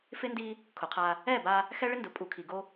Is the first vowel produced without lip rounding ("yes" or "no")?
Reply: yes